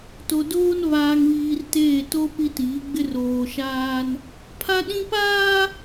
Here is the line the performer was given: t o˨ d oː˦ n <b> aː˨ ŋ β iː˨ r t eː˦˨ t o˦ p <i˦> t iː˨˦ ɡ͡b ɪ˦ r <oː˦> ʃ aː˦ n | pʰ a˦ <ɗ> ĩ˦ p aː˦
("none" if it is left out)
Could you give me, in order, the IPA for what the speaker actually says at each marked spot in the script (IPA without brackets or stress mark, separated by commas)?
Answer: β, i˦, oː˨, ɗ